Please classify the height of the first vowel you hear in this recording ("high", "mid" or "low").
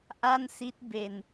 low